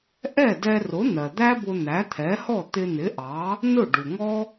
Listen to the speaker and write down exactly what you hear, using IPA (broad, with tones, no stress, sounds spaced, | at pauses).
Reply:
ʔ ɛ˥˩ d ɛ˧ r ʊ˩˥ n̪ ɜ˩ d̪ æ˥ b ʊ˧ n̪ æ˩˥ t̪ʰ ɛ˩˥ h ɔ˥˩ t̪ ɪ˧ n̪ ɪ˩˥ ʔ ɑ˩˥ | n ʊ˥˩ ɖ u˩ ŋ ɔ˥